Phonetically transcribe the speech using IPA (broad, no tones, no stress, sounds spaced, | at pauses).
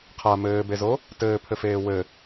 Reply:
qʰ a m ɘː b e z o | t ɘː pʰ ɘ f eː w ɘ